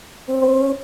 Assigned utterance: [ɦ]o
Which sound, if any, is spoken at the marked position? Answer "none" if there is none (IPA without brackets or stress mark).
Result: ɦ